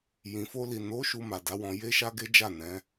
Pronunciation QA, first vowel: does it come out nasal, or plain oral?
nasal